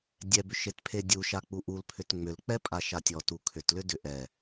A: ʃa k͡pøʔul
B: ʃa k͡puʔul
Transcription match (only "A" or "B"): B